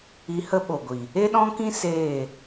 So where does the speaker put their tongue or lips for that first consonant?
throat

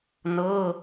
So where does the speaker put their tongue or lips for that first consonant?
tongue tip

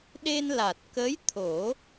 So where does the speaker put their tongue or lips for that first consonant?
tongue tip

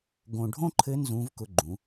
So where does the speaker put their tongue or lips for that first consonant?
velum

